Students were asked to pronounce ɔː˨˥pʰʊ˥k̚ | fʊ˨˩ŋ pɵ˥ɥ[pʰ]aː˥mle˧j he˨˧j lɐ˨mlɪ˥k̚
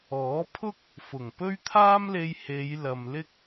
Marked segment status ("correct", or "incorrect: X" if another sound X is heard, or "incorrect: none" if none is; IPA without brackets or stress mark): incorrect: t̪ʰ